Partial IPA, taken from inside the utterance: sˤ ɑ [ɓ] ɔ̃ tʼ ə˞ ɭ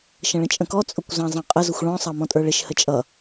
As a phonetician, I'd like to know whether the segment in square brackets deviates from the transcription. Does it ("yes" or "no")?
yes